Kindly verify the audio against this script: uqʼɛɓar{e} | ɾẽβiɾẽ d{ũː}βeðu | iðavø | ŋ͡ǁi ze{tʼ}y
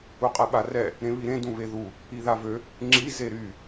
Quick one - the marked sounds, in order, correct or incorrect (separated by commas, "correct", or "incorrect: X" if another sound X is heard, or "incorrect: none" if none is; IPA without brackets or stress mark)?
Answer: incorrect: ɛ, incorrect: ũ, incorrect: ɾ